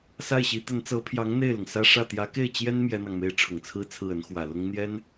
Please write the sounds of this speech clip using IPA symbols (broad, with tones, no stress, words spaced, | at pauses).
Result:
sa˥˩ɪ̯ɕi˧˥ t̪ə˧˥nt͡sɤ˧˥pʰjɑ˧˥ŋ n̪e˥˩ɪ̯lʊ˩ŋsä˥ ʂä˥˩ t̪jä˧˥ke˥˩ɪ̯t͡ɕjɛ˥n mjɛ˥n̪ɑ˨ŋme˥ɪ̯ ʈ͡ʂʰʊ˨˩ŋt͡sʰɹ̩˥˧t͡sʰɹ̩˥˩ə˧˥n xwä˨˩lʊ˥ŋn̪jɛ˥n